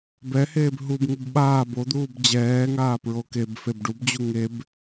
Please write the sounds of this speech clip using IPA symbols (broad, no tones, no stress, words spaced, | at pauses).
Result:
bɛheːb ɦubŋub ɓaːb od̪uːb d͡ʑɛːŋaː pɹokebfeb ɖubd͡ʑu ŋeb